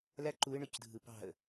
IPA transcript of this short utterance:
l æ ǃ u ɪ̯ ɳ ø c dʱ ɯ p ɑ̤ ə̯

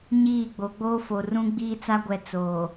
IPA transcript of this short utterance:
ɲ iː˦˨ ɡ͡b o˨˦ ɡ͡b oː˦ f o˨ r ũ˦ ɡ͡b iː˦ t͡s a˦ ɡʷ ɛ˨ t͡s oː˨

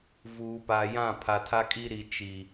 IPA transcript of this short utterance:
v uː˨ p a˨ j ã˦˨ pʰ a˨ tʰ a˦ kʼ i˦ ɾ i˨ t͡ʃ i˨

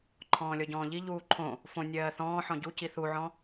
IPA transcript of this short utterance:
ǃʰ ɔ̃ː lʲ ɔ ɟ ɔ̃ː ʎ i ʎ uː ǃʰ õ | f õ nʲ ɜː θ ɔ̃ː ħ ɔ̃ ɟ u c i θ u ʕ ɔ̃

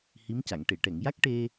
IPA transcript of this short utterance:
h i˧˥ m c a˨˩˨ ŋ ʈ e˨˩˨ ʈ ɛ˨˩˨ ŋ j a˦˥ k̚ ʈ e˧

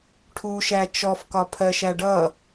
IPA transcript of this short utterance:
ʈʰ u ʃ æ t͡ʃ ɔ f k ɒ pʰ ɜ ʃ æ ɖ ʌ

